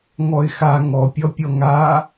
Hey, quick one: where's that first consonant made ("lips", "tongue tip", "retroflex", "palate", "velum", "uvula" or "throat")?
velum